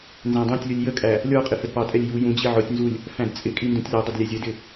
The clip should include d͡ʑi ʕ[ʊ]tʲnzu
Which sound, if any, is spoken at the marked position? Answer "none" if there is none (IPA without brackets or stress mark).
ʊ